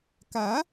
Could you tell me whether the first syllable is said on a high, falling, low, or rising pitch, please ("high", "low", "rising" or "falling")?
rising